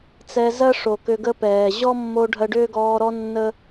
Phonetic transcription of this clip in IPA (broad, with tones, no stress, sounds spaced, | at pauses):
t͡s ɛ˧ z ɜ˦ ʂ o˨ k ʏ˧ ɡ ə˦ p ɛː˨ ʑ ɔ˦ mː o˧ ɖʱ ɜ˧ ɖ ʏː˦ ɡ ɔː˧ ɾ ɔ˦ nː ə˦